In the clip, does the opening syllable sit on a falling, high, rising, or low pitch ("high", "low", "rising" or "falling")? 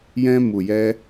high